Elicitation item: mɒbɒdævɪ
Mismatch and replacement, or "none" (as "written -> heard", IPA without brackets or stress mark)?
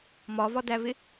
b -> v